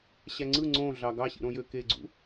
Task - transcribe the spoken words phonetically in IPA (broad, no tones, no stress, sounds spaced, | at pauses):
ɕ æ ŋ͡ǀ ɯ ŋ͡ǀ õ ɮ ɑ ɡ ɑ ɕ ḭ ɾ õ j ø k e ɡ͡ǀ ṵ